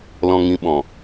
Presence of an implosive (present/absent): present